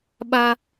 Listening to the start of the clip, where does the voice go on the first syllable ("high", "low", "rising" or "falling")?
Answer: high